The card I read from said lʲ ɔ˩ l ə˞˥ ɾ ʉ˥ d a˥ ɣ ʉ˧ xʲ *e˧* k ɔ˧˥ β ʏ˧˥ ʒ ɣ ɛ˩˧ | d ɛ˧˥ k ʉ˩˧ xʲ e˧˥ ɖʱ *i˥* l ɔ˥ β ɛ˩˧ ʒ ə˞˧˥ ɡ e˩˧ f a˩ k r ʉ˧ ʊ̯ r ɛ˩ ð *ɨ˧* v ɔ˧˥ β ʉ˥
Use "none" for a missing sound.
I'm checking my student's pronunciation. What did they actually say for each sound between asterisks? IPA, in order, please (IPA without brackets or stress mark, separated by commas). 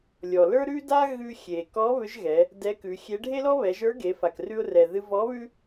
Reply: e˩, e˥, ɨ˧